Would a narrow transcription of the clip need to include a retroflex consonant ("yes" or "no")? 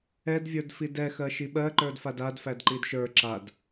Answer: no